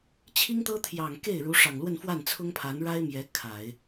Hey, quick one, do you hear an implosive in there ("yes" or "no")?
no